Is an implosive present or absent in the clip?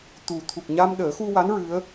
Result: present